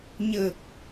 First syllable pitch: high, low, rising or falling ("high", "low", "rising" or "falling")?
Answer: low